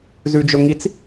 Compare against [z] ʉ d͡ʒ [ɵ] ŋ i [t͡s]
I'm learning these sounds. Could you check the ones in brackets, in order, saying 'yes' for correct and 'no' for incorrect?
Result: yes, yes, yes

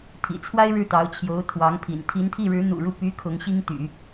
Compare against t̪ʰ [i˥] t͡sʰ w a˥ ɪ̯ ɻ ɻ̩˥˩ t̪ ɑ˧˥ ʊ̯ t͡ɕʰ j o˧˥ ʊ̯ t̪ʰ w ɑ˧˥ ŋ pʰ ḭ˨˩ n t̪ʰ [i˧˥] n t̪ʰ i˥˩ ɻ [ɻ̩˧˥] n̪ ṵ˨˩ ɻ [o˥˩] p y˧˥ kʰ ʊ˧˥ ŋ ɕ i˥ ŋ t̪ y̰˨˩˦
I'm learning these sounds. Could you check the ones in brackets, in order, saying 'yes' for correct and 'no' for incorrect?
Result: no, yes, yes, no

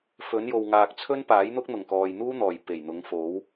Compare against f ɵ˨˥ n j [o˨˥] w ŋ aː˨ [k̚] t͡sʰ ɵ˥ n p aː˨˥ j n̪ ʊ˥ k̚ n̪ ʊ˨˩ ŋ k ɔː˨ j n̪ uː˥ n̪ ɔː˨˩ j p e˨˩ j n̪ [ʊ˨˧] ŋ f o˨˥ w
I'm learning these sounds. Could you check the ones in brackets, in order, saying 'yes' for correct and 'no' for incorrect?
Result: no, yes, yes

